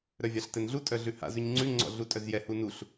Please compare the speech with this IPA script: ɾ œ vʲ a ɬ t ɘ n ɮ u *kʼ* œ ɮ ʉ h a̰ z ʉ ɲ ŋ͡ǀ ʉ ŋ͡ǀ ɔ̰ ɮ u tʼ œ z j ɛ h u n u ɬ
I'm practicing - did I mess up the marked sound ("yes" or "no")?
yes